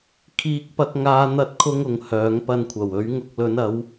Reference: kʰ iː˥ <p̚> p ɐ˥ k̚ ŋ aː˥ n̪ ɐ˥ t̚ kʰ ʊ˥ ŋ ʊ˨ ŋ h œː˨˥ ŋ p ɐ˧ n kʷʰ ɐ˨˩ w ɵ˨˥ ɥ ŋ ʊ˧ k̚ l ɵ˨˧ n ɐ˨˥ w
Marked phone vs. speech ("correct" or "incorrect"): incorrect